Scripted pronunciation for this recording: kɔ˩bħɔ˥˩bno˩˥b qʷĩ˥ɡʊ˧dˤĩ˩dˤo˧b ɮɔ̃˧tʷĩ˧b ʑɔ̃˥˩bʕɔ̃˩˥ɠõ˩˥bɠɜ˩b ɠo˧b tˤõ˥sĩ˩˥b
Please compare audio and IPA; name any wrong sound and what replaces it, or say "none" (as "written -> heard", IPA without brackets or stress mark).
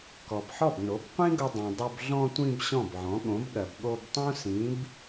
ʑ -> ɕ